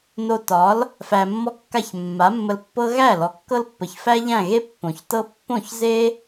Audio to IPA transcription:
n o˧ t ɒ˩˥ l | f æ˧ mː ɔ˥ kː a˥˩ ç mː a˩˥ mː ə˧ l pː ɤ˥ ɣ æ˥˩ l ɔ˩ kː ɤ˥ l pː ə˩ ç f æ˥ ʎ æ̃˥˩ ɣ e˥ pː õ˩ ç t ɤ˥ pː õ˥˩ ç z e˥

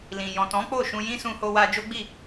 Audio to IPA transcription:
l ĩ˨ j ɔ̃˨ t ɔ̃˨˦ k͡p o˦˨ ʃ ũ˧ j ĩ˦ s ũ˧ h o˧ w a˧ d͡ʒ o˦ ɡ͡b i˦˨

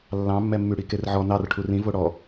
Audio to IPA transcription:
lː ɑ̃ mː ɛ mː y ɽ i k e r ʕ ɔ n ɑ r ʈʰ u r ĩ v o ɽ ɔ

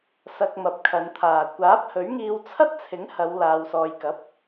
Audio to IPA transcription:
s ɐ˧ k̚ m ɐ˨ p̚ kʰ ɐ˨˧ n t̪ʰ aː˨ kʷ aː˨˥ p̚ h ɵ˨˥ ɥ ŋ iː˧ w t͡sʰ ɐ˥ t̚ t͡sʰ ɪ˨˥ ŋ h ɐ˨˧ w l aː˧ w s ɔː˧ j k ɐ˨˥ p̚

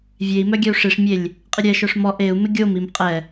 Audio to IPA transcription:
vʲ e i̯ m œ ɡʲ ɛ u̯ ʂ i ʂ mʲ e lʲ | qʼ ɪ ɾʲ ɛ ʃ œ ʂ m ɔ ʔ e u̯ m ɪ ɡʲ o m i m qʼ ɛ

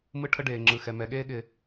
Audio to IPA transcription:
m ɯ˦ ʈʰ ə˦ ɖ eː˨ ŋ͡ǁ ɯ˨ x ɛ˨ m ɛ˨ ɠ eː˦ ɠ ɪ˨

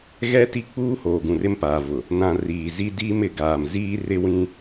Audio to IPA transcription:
ɣ ɛ˦ t i˦ k͡p uː˦ h oː˨ ɡ ũ˨ r ɪ˦ m p aː˨ v ʊ˨ | n ã˨ r iː˨ z i˦ d iː˦ m ɪ˨˦ ɡ aː˨ m z iː˦ r ɪ˦ w ĩ˦

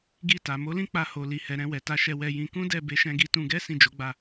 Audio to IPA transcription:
ɡ i˧ t a˨ m o˨˦ l ĩ˦ k͡p a˧ h o˨ l i˨ h ɛ˨ ɾ ɛ̃˧ w ɛ˨ t a˧ ʃ ɛ˧ w ɛ˧ j ĩ˧ k ũ˦ d ɛ˦˨ b e˧ ʃ ɛ̃˧ ɡ i˧ t ũ˧ ɡ ɛ˦ s ĩ˦˨ d͡ʒ o˨˦ ɡ͡b a˦˨

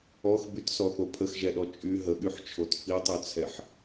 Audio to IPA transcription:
ɔ x b y t s ɔ θ o pʰ ə x ʒ ɛ ɗ ɔ t͡ʃʼ y ɦ ə ɠ y ħ t͡ʃʰ o t f i tˤ y t͡sʰ ɛ ħ

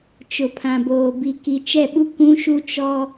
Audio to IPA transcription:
t͡ʃ ʊ˨ pʰ ã˨ b oː˨ b i˨ k i˨ t͡ʃ ɛ˦˨ ɓ u˦ k ũ˦ ʃ u˦ t͡ʃ ɔ˦

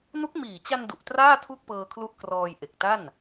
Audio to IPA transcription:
n u˦˥ k̚ m iː˨˩ t͡ɕ a˧ n d u˨˩ ʔ t r aː˥˩ tʰ u˥˩ k̚ p ɤː˧ kʰ l u˦˥ ʔ k r ɔː˧ j ʔ e˨˩ k̚ t a˥˩ n

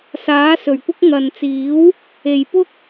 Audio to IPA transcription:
s aː˨˥ s ɵ˨˩ ɥ kʷ ɪ˥ k̚ ŋ ɐ˨ n t͡s iː˨˥ w | e˨˩ j p ʊ˥ k̚

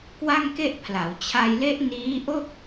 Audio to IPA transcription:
k w a˥˩ ŋ k e˥˩ ʔ pʰ l a˩˦ w t͡ɕʰ a˧ j l e˦˥ ʔ n iː˦˥ ʔ o˥˩ k̚

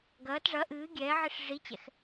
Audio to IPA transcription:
ɡ ɐː t ʐ ɐ ʔ ɨː ɡʲ ɛː ʕ i ʂ ʐ i t͡ɕ ɛ̰ x

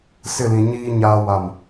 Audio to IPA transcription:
s ɪ˦˨ l ĩ˨ ɲ iː˦ ɲ aː˦ w a˦˨ m

